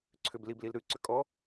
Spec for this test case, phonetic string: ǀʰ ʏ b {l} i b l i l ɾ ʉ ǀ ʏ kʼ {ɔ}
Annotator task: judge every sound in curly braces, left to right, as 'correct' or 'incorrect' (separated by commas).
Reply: correct, correct